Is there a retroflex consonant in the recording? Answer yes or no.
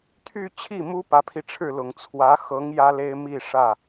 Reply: yes